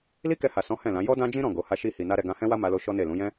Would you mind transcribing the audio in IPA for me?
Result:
l i˦ k ɛ˧ h a˨ s ɔ̃˨˦ h ɛ̃˦˨ l ã˨˦ j ɔ˦ d ã˦ d͡ʒ ĩ˦ ɾ ɔ̃˦˨ ɡ o˨˦ h a˦ ʃ i˦ h i˧ n a˦ ɾ ɛ˧ ɡ ã˧ h ɛ̃˦ w a˦ m a˦ l o˦ ʃ ɔ˦ n e˦˨ l ũ˨˦ j ɛ̃˦

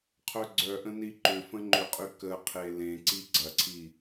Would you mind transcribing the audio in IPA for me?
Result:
qʰ œ ɡ͡ǀ œ ʔ ə̃ n i ǃ ʏ f ə̃ ŋ͡ǃ ʏ qʼ y k ə qʰ e l ẽ ǀ i ɡ͡ǀ ɐ ǀʰ i

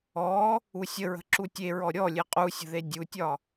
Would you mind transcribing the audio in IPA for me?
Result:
ɔ | u sʲ ə ɹ ə̤ ǁ u tʲ e ɹ ɔ ɾʲ ɔ lʲ e qʼ u sʲ ə̤ ð e dʲ u tʲ ɒ

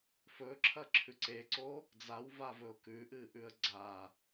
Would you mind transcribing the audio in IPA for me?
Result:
f ɵ ǁʰ ɐ ǁʰ ʉ ǀ e ǀ o | d͡z a w v a v ɵ ʊ̯ k ʉ ʔ ɨː ʔ ʉ ə̯ ɡ͡ǀ a

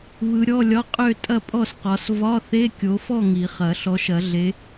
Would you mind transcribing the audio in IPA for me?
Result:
β ɯ˨˦ ɾʲ ɔ˧˥˧ lʲ ɒ˧˥˧ qʼ ø˥˨ tʼ ɐ˥˨ pʼ ɔ˥˨ s q ɒ˨˦ s v ɒ˧˥˧ θ e˧˥˧ kʲ o˨˦ f ɔ˥˨ ŋ i˨˩˦ χ ɐ˨˩˦ ɬ ɔ˨˦ ʃ ɐ˨˩˦ ɮ e˨˦

